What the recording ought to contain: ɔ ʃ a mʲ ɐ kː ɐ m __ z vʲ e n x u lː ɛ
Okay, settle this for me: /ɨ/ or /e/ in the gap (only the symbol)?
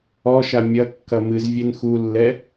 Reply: ɨ